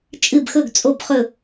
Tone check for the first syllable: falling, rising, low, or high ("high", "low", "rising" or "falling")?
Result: falling